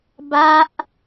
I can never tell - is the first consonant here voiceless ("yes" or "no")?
no